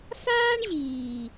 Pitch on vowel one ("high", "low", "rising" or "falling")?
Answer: high